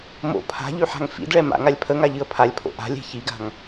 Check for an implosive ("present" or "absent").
absent